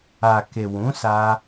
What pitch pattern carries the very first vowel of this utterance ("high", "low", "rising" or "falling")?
low